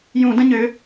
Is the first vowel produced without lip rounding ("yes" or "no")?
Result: no